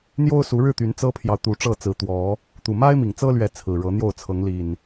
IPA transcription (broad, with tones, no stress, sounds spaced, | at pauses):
n̪ j o˦ ʊ̯ s u˨˦ ɻ ɻ̩˥˨ t̪ y˨˦ n t͡s ɤ˦ pʰ j ɑ˨ ʊ̯ t̪ u˨˦ ʈ͡ʂ ɤ˥˨ t͡s ɹ̩˨˦ t̪ w ɔ˨˦ | t̪ u˨˩ m a˦ ɪ̯ m i˨˩ ŋ t͡s ɤ˦ l ɥ ɛ˨˦ t͡sʰ ɹ̩˨˩ ɻ ɤ˨˦ n̪ j o˥˨ ʊ̯ t͡sʰ ɤ˨˦ ŋ l i˨˩ n